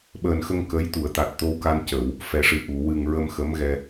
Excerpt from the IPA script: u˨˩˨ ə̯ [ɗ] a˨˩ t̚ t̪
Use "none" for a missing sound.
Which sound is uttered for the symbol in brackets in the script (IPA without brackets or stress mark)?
t̪